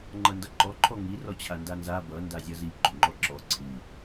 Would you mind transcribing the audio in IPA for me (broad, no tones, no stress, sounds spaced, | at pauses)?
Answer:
ŋ͡ǃ ʌ n d ʌ ǃ ɔ ǃʰ ɔ ŋ i r ɔ t͡ɕʰ a n d a n z a b ʌ n d a zʲ ʌ z i ɡ͡ǃ o ŋ͡ǃ ɔ ǁ ɔ ǀʰ i